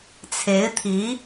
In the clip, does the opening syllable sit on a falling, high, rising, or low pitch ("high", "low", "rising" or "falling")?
rising